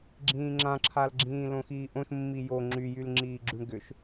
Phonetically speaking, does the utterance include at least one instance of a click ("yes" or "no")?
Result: yes